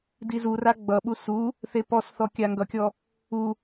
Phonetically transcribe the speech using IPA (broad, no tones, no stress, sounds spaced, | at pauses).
d i z u r a ɡ͡b ʌ ɓ u s u | θ e p ɔ s θ ɔ kʲ a ŋ ɡ ʌ kʲ ɔ | u